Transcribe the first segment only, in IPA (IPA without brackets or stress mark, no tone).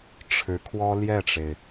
ʈ͡ʂʰ